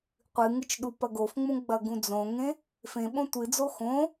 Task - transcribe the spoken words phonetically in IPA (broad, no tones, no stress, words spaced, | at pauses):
qʷɨŋɨt͡ʃ ɗupɐɡofŋ͡mũ ɡ͡bɐɡũd͡zõŋẽ | fẽɓõ tʷɨd͡zo xõ